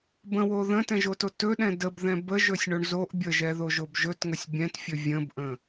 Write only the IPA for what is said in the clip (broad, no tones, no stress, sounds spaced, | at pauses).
b ə̃ w o ð ə̃ t ɛ̃ ʒ o t o t ɵ ɗ ɛ̃ d ə b ð ɛ̃ b ə ʒ ɵ sʲ ɳ o ɳ z o ʔ bʲ ə ʒ ɛ ð o ʒ o b ʒ ɵ t ŋ ə sʲ bʲ ɛ̃ t fʲ ɵ vʲ ə̃ b ʔ ə̃